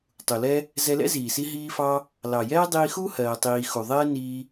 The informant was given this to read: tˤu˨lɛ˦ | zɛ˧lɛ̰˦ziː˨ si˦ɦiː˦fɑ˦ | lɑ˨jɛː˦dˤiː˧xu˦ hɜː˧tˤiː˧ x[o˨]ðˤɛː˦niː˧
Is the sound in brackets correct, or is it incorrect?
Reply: incorrect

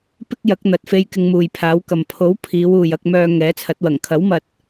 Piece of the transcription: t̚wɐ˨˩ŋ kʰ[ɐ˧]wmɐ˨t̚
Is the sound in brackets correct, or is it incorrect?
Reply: incorrect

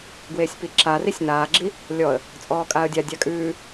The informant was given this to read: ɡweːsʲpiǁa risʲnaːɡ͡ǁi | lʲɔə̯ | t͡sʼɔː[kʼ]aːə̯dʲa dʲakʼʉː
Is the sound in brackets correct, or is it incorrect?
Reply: correct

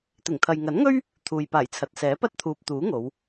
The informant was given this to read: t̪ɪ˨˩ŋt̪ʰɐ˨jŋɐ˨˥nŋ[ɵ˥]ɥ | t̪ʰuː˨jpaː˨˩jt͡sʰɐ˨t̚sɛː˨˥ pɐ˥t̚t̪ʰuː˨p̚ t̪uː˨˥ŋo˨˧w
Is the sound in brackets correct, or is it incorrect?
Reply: correct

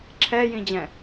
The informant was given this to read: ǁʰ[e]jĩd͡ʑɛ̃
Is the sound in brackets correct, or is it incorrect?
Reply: incorrect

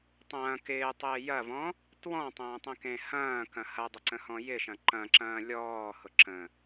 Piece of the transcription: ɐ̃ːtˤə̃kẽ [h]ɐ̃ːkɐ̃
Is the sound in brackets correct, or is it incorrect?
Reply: correct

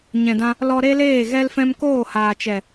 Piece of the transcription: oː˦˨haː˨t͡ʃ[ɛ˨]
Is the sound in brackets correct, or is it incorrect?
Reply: correct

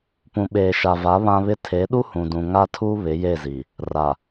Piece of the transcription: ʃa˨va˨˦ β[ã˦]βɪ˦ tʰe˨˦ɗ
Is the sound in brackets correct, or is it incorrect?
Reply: correct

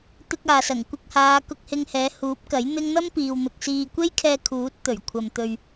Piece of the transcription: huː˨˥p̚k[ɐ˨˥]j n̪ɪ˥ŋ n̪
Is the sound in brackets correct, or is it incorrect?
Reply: correct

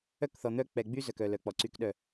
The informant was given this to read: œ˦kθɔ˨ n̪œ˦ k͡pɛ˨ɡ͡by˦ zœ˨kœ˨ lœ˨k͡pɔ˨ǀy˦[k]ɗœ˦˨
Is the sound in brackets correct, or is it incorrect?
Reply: correct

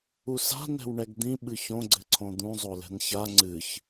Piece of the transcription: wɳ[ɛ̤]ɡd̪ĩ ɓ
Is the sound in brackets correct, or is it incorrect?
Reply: incorrect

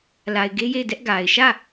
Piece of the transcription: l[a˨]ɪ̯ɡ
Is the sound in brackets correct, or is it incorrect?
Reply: correct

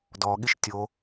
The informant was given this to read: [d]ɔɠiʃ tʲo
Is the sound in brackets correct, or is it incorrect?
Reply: correct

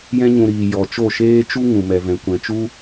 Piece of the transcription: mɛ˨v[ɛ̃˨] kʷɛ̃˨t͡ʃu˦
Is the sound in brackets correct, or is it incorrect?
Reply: correct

